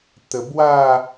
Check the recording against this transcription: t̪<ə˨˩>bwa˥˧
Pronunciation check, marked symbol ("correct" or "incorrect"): correct